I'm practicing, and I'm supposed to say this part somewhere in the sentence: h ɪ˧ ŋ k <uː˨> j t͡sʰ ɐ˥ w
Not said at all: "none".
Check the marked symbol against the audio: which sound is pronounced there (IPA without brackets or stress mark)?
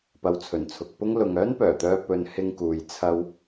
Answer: uː˨